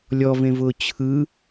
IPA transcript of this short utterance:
lʲ ɔ v ẽ v ʊː t͡ɕʰ ɯ

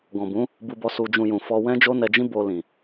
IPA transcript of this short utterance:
ɡ ɔ̃˨ b ũ˨˦ | b u˧ b ɔ˧ s u˧ d͡ʒ ũ˧ j ũ˨ f ɔ˧ w ɛ̃˦ d͡ʒ o˦ n ɛ˧ d͡ʒ ĩ˦ b o˧ l ĩ˨

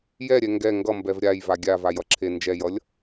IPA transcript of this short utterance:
j ɛ ɾʲ ɛ ŋ ɡ ɛ ŋ ɡ ʌ m b ɛ v ɾʲ a j v a ɡʲ a v a j ʌ ǁʰ e n d͡ʒ ɛ j ʌ lʲ

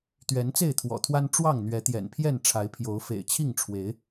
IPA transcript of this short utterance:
t̪ ɥ ɛ˨˦ n t͡s e˥˨ ɪ̯ t̪ʰ w ɔ̰˨˩ t̪ʰ w a˦ n ʈ͡ʂ w ɑ˥˨ ŋ n̪ ɥ ɛ˨˦ t̪ j ɛ̰˨˩ n pʰ j ɛ˥˨ n ʈ͡ʂʰ a˨˦ ɪ̯ pʰ j o˨˦ ʊ̯ f ḛ˨˩ ɪ̯ t͡ɕʰ i˥˨ ŋ ʈ͡ʂʰ w e˨˦ ɪ̯

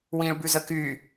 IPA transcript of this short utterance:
w ĩː ɭ b ʉ z ə k y

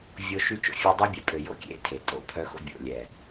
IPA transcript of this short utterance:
vʲ o˦ ʃ y˦ t͡ʃ o̰˨ fʲ e˦ dˤ e˦ bʲ ɛ˨ pʼ ø˨ j o̰˦ kʲ ḛ˦ tʰ e˨ tʼ o̰˦˨ pʰ œ˦ x o̰˦ bʲ o̰˨ lʲ ɛ˨

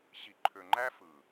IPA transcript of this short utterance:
ɕ i˨ ǃʰ ø˨ ŋ͡ǃ æ˦ f ɯ˨

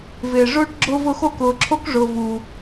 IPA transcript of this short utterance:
v ɪː˩ ʐ ʊː˥ ʈ ɡ͡ǁ ʊ˦ v ʊ˦ x o˥ k ʊː˨ ǁʰ o˥ k ʐ ʊː˨ v u˩

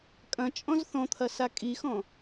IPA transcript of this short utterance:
kʼ ɐ̃ t͡ʃʼ ɔ̃ z θ ɔ̃ t̪ʰ ɐ s a kʼ i x ɔ̃

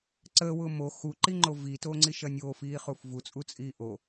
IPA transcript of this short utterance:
ǀ əː w ʊː m o x u ǃ i ŋ͡ǃ o v i t oː ŋ͡ǀ i ʃ ɐ nʲ oː f iː χ u f v u t͡sʼ u t͡sʼ iː ʔ o

